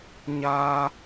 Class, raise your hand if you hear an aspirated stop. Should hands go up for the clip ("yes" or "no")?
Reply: no